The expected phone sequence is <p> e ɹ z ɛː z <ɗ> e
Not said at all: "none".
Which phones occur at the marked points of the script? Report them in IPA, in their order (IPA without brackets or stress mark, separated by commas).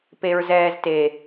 p, t